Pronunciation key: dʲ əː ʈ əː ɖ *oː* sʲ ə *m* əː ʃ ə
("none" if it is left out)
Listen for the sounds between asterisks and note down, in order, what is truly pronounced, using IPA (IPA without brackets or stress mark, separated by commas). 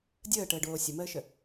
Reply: oː, m